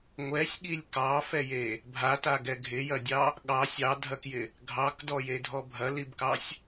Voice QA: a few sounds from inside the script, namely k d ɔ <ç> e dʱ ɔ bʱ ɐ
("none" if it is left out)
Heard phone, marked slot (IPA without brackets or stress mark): j